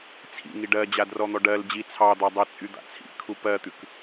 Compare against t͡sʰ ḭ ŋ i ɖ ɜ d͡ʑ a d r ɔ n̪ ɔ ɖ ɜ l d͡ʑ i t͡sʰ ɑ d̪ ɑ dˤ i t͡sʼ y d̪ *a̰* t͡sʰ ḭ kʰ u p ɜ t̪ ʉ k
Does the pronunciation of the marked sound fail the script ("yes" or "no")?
no